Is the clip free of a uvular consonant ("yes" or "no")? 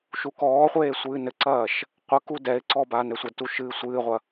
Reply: no